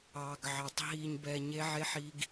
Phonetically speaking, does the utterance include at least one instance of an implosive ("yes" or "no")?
no